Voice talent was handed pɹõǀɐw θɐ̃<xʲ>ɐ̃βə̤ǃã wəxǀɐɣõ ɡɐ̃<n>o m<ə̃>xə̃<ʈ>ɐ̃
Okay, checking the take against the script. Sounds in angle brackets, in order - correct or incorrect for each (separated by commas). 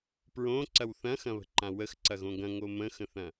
incorrect, incorrect, correct, incorrect